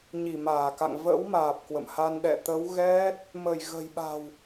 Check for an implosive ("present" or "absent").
present